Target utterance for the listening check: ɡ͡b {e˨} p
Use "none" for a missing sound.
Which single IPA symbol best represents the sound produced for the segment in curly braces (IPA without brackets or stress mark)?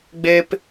e˦